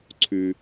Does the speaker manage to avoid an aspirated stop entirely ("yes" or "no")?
no